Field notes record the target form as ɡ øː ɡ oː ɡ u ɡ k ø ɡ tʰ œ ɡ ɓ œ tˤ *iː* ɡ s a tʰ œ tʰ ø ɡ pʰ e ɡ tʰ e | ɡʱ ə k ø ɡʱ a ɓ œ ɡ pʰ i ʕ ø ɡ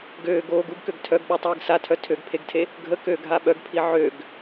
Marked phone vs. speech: correct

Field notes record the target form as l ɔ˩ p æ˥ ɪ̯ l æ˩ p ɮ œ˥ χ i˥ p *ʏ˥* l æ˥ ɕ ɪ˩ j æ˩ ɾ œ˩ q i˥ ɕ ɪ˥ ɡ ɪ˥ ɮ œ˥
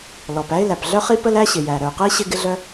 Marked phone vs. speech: incorrect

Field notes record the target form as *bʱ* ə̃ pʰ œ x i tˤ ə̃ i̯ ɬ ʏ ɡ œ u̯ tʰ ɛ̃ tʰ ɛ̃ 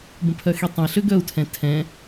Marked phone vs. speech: incorrect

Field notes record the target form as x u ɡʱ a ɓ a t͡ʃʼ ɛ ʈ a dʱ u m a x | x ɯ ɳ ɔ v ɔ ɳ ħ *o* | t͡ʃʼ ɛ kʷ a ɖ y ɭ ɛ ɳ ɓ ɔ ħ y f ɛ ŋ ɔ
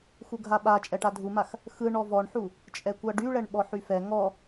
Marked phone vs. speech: incorrect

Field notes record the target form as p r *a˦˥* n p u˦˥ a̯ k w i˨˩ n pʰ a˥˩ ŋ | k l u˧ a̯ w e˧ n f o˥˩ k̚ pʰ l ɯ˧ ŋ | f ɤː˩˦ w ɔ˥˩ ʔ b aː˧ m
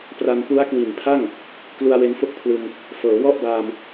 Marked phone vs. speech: incorrect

